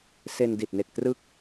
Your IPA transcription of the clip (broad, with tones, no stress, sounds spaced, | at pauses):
s e˧ n d i˨˩ t̚ n e˨˩ k̚ t r ɯ˦˥ k̚